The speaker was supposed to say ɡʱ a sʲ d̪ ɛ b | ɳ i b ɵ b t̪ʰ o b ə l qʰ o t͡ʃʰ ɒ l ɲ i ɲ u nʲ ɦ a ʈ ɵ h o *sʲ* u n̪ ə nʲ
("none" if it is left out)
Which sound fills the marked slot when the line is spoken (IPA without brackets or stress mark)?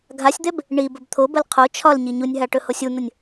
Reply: sʲ